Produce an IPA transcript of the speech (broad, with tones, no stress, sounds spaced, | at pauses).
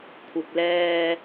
kʷʰ ɪ˨ k̚ l ɛː˧